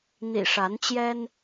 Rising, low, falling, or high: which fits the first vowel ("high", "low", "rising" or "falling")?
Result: low